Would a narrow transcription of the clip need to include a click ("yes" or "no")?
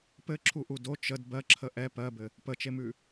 yes